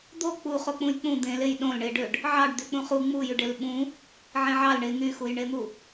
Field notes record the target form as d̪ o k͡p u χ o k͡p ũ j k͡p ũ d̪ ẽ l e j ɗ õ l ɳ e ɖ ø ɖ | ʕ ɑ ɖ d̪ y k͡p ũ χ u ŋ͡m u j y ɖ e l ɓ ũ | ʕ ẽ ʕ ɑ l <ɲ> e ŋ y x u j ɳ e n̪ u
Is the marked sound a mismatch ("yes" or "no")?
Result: yes